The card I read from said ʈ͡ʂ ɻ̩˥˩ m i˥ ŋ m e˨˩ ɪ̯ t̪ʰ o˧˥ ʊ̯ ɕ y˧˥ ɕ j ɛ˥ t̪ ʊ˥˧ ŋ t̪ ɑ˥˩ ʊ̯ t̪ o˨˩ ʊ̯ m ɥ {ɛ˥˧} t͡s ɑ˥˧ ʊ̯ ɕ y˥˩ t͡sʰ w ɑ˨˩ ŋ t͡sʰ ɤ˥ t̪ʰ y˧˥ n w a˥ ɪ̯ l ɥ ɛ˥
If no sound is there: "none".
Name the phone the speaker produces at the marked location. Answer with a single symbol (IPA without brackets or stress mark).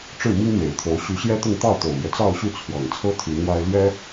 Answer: ɛ˦